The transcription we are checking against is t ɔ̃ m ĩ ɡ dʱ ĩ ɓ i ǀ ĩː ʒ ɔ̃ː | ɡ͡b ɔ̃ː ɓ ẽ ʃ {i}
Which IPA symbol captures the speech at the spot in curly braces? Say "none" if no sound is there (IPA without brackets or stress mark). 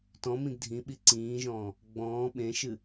ɨ